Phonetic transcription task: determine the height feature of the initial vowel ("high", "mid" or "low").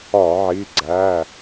low